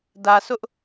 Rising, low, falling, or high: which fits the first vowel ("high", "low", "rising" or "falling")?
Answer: low